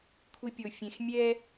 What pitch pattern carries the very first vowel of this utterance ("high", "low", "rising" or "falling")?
high